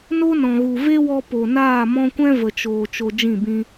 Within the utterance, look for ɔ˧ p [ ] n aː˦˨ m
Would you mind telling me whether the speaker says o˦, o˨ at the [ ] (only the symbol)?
o˨